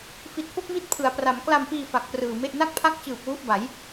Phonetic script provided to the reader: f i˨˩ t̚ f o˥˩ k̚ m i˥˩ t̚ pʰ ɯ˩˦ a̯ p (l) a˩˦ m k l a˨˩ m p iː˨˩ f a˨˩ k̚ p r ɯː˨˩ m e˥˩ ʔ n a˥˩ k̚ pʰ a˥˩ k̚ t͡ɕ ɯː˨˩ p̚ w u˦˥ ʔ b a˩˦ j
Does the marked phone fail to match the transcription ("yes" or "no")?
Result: yes